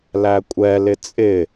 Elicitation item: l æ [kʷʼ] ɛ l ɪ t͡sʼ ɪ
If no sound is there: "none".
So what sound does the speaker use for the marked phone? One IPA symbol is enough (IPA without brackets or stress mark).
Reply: kʷʼ